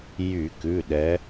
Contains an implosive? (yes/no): yes